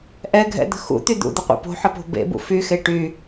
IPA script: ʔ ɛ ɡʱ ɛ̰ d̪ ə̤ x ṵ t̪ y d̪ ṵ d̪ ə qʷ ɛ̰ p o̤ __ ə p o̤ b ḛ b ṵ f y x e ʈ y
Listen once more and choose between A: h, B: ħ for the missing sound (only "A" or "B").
B